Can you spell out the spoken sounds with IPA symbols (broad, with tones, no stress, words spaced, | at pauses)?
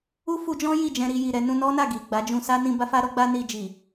u˦fu˧d͡ʒɔ̃˦ ji˦˨d͡ʒɛ̃˧ ɾi˧ji˨ɾɛ˧ nũ˧nɔ˦na˦˨ ɡi˨ɡ͡ba˨˦d͡ʒũ˧ sa˦nĩ˧ ba˦fa˦ɾɔ˦ ɡ͡ba˦ni˧d͡ʒi˨